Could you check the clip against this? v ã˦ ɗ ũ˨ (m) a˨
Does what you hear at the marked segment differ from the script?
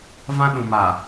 no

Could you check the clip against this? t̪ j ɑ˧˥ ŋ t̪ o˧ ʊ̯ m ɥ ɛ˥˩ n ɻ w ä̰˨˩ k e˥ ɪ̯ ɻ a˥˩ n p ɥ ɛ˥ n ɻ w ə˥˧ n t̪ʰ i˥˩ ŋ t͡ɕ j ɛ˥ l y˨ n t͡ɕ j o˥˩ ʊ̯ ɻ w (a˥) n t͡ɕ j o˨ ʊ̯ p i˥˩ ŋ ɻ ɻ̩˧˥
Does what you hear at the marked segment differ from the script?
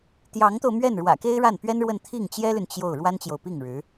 no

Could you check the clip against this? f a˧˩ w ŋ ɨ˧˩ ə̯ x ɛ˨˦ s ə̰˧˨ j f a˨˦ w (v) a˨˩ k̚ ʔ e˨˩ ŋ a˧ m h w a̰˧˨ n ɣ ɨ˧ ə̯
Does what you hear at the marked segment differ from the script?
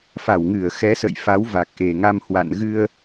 no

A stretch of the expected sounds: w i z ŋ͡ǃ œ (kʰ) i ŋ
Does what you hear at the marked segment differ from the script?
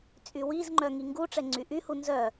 yes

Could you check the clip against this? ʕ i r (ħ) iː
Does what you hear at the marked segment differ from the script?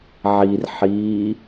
no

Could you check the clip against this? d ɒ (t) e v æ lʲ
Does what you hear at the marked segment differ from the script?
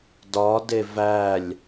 yes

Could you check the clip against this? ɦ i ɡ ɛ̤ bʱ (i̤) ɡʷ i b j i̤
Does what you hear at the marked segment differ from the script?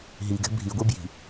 yes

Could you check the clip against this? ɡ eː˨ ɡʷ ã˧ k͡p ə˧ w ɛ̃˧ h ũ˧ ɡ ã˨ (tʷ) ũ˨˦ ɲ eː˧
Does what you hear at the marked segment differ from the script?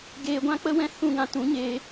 yes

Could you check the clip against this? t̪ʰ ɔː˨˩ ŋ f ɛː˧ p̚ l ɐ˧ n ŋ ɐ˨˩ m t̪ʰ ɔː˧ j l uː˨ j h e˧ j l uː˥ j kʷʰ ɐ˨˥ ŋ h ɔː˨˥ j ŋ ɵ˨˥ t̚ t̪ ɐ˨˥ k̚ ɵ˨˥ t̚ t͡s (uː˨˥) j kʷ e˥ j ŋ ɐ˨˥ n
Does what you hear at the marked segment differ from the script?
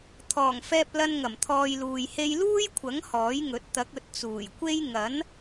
yes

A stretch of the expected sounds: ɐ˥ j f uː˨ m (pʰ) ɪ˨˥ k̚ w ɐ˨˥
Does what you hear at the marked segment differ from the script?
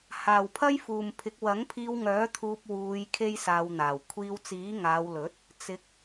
no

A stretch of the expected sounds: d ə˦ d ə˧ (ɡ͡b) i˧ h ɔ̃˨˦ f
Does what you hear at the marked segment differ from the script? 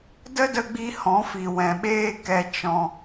no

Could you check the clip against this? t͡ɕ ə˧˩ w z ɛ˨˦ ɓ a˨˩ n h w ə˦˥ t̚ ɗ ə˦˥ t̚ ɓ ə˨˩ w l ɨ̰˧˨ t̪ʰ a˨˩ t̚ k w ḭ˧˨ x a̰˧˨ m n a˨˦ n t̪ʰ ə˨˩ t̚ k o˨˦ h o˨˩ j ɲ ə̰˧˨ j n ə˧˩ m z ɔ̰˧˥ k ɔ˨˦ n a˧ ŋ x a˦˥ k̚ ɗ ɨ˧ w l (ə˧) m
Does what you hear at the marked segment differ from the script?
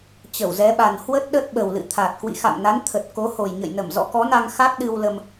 no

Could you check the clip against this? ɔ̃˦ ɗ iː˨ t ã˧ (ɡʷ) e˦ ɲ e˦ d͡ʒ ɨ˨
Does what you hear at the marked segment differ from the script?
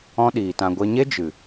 no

